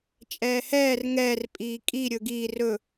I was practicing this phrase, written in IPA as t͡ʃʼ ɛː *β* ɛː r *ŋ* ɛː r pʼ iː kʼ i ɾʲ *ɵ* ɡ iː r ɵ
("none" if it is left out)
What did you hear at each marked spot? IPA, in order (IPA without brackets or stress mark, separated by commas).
h, ŋ, ɵ